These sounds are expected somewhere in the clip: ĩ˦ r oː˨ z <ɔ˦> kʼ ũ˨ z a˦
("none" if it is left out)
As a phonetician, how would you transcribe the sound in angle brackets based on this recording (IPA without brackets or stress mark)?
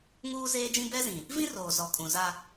ɔ˨